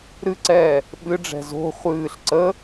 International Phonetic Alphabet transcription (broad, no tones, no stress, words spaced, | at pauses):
ɾɨǀɛː | ɓɨɖ͡ʐɛ̤ zo̤ χʷɨːɬ ǀə